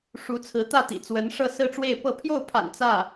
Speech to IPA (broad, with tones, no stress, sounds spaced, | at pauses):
ʂ u˧˥ t͡sʰ ɹ̩˧˥ t̪ ä˥˩ t̪ ḭ˨˩ t͡s w ə˧˥ n ʂ ɤ˥˧ s ɹ̩˥˧ ʈ͡ʂ w e˥˧ ɪ̯ p ɤ˥˧ pʰ j o˥˩ ʊ̯ pʰ a̰˨˩ n t͡s ä˥˩